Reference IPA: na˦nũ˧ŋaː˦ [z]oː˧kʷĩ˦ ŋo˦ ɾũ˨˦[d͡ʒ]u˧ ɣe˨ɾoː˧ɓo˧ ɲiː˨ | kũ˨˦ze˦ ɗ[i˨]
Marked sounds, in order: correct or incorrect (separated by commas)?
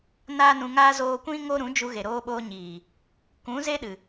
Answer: correct, correct, incorrect